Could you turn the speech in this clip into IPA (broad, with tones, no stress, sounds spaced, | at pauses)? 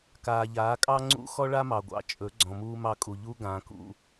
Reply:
k aː˨ ʎ aː˨˦ kʼ ɑ˦ ŋ͡ǀ ṵ˦ x ɔ˦ ɭ a˦ m ɑ˨ ɡʷ ɑ̰˨ t͡ʃʼ ɵ˨˦ ɡ͡ǀ ɔ̃˨ m uː˦ m ɑ˦ kʼ u˨ ʎ u˦ ɡ ãː˨ k ṵ˦